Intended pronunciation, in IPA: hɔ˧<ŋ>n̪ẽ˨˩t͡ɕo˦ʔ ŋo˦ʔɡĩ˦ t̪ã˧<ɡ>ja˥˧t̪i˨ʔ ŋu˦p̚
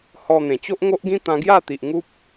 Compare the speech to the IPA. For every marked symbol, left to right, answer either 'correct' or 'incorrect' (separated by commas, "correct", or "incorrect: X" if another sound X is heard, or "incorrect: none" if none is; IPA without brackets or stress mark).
incorrect: none, correct